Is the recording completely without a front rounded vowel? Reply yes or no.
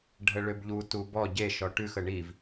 no